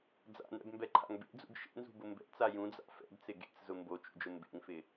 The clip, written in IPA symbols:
d͡za̰nɛ̰bmbɛǃʰa̰ŋ bḛd͡zṵɡ ʃḛnzṳbʊ mbɛ̰t͡sa jũd͡za̰ fɛ̰bt͡sɪ ɡḛt͡szʊ mbot͡ʃṵd͡ʒʊ mbḛŋfɪ

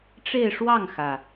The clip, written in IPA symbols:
ʈ͡ʂe˥˧ɪ̯ʂwɑ˥˩ŋxä˩

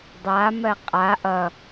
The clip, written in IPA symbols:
dˤamɜ qʼa ʔʌ

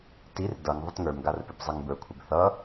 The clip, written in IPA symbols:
tir dʌŋ ðˤɪtŋə˞m ɡarpɪbzˤɪŋbə˞ kʷʰɪbθʌ

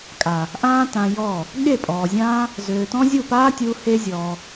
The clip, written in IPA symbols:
kʼa˨ | ʔãː˦tã˧ jɔ˦˨ | ɠe˦˨pʼɔː˨zʲãː˦ | zøː˨tɔ̃˦ zʲu˦˨paː˦tʲuː˧ he˦zʲɔː˧

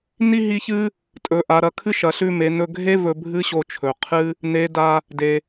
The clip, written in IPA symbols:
ni˥ɦi˧˥çɨ˥ | tʼɵ˩˧ʔa˩˧ɾɐ˩˧kʰɨ˥ ʃɐ˩˧ɬʉ˧me˩˧ nɵ˧ɡʱe˥ vɵ˧ bʱɨ˥ɕo˧ t͡ʃʰɵ˩qʰɨ˥ | ne˧˥ da˧ | de˩

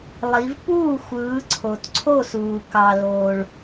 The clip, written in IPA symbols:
lˠi˨˦v puː˥˨xʷɯː˨˦ ǀʰo˨tǀʰo˥˨suː˨ kɑ˨loː˨ɭ

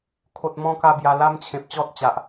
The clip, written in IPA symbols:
kʰo˨t̚ mɔ̃˦ka˥˧bja˧ la˦mt͡ɕʰẽ˨p̚t͡ɕɔ˦t̚t͡ɕa˨ʔ

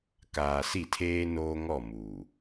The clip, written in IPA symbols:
kaː˨si˦˨tʰeː˦ noː˦ŋɔ˦˨ muː˨

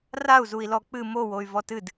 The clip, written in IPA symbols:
rau̯zui̯lɔ k͡pɨ mowoy̯ vɔtɨd

